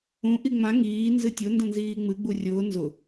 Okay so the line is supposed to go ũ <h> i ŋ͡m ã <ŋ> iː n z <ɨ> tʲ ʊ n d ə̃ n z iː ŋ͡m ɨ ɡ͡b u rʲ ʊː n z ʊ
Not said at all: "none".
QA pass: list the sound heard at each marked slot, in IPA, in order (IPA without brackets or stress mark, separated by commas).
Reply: ʔ, ŋ, ɨ